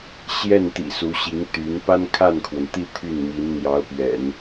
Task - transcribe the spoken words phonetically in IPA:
ɕ j ɛ˥˩ n t̪ ḭ˨˩ s u˧˥ ɕ i˧˥ ŋ t̪ y˧˥ n p a˥ n kʰ a˥˩ n kʰ w ə˩ n t̪ i˥˧ t̪ʰ y˥˩ n m i˧˥ n n̪ j ɑ˧˥ ʊ̯ p ɥ ɛ̰˨˩˦ n

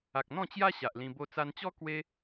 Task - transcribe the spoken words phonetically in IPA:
a˨ k̚ n̪ ɔ̃˥˧ t͡ɕ j a˦ ɕ a˨ ʔ l ĩ˧ b o˦ t͡s a˧ n t͡ɕ ɔ˦ k w e˦

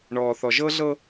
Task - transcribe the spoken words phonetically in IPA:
ɳ ɔː˨ θ ɔ˨ ʒ ɤ˦ ɮ ɤ˦

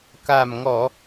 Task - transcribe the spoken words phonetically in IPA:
k a˨˩ m ŋ ɔ˨˩˨

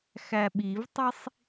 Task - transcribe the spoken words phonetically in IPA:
x æ ɓ i v tˤ i sˤ

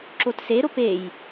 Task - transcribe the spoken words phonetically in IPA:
ǁ o t s e ɾ o p e j

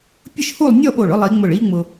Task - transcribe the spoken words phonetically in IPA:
pʲ ʊ˥˧ ʃ h u˥˧ lˠ nʲ ɔ˥˧ ɓ o˧˩ ɭ ʊ˥˧ lˠ i˩˧ ŋ͡m ʊ˧˩ ɭ i˥ ŋ͡m ʊ˧

